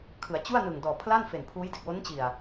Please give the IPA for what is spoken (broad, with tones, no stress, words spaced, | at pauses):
kʰɯ˩˦a̯t͡ɕu˥˩a̯nɯ˨˩ŋ dɔː˨˩pʰla˥˩nfe˨˩n pʰuː˦˥jde˨˩k̚wo˦˥nt͡ɕi˨˩a̯